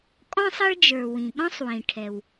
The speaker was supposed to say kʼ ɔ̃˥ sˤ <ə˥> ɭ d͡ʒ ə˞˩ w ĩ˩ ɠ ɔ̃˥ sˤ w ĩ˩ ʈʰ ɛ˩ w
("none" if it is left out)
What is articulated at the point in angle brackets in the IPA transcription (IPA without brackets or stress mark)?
ə˥